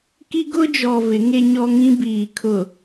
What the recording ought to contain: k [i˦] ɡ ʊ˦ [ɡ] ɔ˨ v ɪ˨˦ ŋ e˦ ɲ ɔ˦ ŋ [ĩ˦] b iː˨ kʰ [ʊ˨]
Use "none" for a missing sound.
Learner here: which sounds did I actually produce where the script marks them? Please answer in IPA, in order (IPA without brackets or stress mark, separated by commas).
i˦, d͡ʒ, ĩ˦, ʊ˨